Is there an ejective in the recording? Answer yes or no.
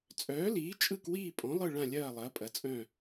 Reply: yes